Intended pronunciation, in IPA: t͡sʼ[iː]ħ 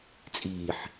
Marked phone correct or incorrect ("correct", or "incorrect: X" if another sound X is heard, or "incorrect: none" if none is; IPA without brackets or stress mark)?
correct